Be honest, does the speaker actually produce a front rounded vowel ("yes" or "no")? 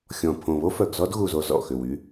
yes